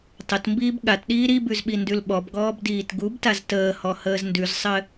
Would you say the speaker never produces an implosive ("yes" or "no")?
no